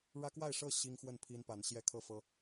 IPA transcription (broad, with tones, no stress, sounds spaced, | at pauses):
ɻ ä˦ k w a˥˨ ɪ̯ ʂ ɤ˥˨ ɕ i˦ ŋ x w ə˥˨ n pʰ i˦ n p a˨˦ n ɕ j ɛ˦ kʰ ɤ˥˨ f ɤ˦